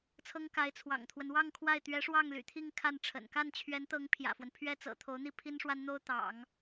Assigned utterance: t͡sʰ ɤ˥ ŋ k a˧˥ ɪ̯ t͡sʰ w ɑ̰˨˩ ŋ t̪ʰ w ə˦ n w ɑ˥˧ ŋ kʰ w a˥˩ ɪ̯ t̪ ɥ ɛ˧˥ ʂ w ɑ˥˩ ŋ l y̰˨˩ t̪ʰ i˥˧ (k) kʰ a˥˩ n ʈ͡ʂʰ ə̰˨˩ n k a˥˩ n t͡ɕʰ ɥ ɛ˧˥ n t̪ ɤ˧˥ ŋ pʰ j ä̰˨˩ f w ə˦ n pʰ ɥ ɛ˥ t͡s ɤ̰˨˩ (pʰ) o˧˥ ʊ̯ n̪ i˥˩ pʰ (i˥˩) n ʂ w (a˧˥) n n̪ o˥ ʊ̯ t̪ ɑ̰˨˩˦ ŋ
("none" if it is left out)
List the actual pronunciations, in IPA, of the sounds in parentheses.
ŋ, t̪ʰ, i˥, a˥

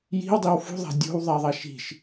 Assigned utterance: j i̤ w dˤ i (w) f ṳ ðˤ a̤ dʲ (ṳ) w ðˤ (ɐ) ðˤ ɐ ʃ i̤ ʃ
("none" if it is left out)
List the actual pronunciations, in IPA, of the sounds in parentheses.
w, o̤, a

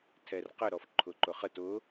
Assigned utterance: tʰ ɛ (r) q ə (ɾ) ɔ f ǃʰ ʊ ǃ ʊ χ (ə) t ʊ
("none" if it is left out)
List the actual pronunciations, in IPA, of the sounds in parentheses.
r, ɾ, ə

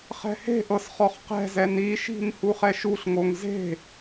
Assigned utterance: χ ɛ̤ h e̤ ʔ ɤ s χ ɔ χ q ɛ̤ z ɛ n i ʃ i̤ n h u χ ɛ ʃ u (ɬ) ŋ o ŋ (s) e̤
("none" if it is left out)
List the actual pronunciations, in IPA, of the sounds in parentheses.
ɬ, z

